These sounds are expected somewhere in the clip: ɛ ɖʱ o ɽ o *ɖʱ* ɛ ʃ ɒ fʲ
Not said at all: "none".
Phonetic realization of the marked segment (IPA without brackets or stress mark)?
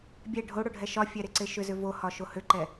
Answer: ɖʱ